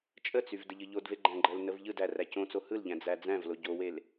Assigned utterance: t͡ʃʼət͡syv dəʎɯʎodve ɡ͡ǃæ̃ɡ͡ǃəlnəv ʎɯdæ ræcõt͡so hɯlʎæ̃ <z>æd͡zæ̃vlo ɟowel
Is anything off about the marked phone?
yes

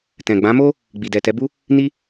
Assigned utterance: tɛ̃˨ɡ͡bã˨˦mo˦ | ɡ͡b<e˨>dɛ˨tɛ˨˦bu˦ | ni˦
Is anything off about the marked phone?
yes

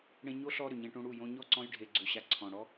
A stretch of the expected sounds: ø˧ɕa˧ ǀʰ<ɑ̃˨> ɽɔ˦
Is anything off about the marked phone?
yes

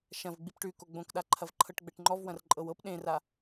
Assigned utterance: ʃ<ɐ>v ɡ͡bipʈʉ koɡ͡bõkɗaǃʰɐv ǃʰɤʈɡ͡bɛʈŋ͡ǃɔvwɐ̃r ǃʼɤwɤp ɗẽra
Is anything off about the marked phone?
yes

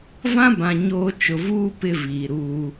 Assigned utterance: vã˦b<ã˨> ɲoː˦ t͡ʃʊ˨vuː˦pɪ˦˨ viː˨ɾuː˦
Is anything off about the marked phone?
no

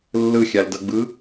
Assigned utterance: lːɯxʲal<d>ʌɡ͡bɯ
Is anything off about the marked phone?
no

